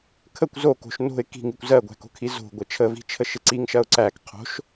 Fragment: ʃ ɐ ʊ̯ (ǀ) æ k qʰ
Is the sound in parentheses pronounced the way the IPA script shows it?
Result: yes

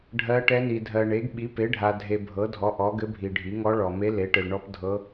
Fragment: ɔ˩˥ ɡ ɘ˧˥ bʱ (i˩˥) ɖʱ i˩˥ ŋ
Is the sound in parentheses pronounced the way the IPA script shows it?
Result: no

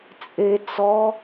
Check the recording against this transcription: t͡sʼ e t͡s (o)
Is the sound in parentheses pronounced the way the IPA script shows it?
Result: no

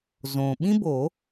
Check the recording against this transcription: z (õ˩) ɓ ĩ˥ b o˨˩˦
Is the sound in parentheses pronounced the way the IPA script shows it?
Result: yes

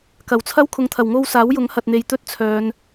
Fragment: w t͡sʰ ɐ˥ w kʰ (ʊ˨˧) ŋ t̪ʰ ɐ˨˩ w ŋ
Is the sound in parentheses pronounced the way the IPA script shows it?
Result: yes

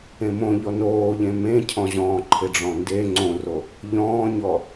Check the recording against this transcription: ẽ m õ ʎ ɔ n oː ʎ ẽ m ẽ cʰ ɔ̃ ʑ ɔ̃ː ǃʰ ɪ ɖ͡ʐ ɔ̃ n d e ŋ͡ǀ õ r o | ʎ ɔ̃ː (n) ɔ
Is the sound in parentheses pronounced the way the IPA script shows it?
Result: no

